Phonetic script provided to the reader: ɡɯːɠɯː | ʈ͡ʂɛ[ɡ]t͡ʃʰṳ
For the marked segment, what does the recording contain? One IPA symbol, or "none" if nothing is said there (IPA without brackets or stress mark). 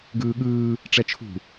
none